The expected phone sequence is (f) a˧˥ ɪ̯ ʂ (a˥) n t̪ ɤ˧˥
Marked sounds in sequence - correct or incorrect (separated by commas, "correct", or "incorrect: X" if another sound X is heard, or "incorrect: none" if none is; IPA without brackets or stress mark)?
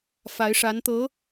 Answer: correct, incorrect: a˧˥